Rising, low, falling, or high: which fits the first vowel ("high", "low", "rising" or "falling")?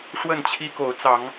falling